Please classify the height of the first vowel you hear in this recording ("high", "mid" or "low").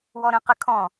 mid